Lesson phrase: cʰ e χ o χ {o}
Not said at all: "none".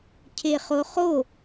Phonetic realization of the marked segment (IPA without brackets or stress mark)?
o